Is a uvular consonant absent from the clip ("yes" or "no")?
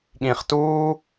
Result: no